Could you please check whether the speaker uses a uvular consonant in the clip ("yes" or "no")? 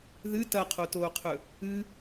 yes